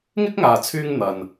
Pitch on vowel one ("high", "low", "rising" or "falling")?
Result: high